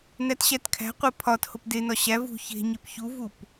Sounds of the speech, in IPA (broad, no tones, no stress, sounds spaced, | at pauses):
n æ t ɕ æ t kʰ æ̤ qʷ e pʰ ɒ t h o p d e n ɒ ɕ æ v ṳ ç e̤ ɲ e p ç u v u p